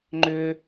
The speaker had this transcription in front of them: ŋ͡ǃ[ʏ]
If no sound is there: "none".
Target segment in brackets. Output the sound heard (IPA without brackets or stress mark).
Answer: ʏ